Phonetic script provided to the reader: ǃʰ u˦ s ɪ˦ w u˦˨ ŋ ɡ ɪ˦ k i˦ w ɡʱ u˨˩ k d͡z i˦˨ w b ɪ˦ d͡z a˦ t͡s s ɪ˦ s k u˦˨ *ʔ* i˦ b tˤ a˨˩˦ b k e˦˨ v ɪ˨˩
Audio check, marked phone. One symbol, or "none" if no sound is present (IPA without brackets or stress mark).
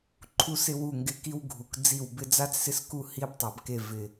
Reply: h